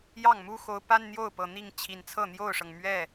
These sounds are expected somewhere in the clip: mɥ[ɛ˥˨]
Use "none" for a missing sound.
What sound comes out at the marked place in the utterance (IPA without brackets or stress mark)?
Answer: ɛ˥˨